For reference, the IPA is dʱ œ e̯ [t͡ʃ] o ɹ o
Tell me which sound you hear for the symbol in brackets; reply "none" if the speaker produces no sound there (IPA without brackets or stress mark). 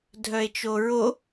t͡ʃ